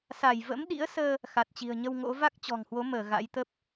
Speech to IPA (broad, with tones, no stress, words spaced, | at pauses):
sa˧˩jvə̰˧˥mɗḭ˧˥ə̯səː˧ | xa˨˩t̚t͡ɕi̤˨˩ə̯ɲə˧wŋo̰˧˥ va˦˥k̚t͡ɕɔ̤˨˩ŋhwo˨˦məː˧˩ ɣa̰˧˥jt̪ə˦˥p̚